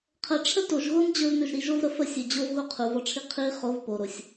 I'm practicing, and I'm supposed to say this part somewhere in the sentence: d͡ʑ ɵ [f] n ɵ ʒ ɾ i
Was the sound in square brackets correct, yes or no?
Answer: no